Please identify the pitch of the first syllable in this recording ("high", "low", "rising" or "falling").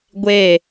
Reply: falling